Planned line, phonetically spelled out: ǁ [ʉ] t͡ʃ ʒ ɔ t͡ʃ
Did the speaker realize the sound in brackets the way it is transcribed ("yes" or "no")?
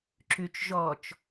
yes